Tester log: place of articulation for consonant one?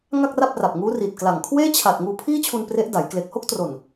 velar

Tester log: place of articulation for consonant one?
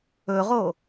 uvular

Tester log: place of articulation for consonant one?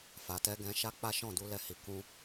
labial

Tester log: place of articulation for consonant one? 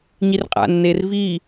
palatal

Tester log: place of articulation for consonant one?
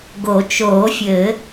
velar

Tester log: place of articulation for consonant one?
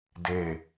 alveolar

